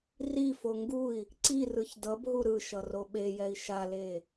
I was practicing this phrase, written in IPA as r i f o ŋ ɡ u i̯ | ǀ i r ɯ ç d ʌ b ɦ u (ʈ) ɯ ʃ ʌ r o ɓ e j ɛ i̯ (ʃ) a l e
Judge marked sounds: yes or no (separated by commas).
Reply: no, yes